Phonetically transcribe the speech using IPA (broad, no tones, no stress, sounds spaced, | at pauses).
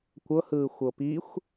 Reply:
kʷ ɤ h ɯː xʷ ɤ p i xʷ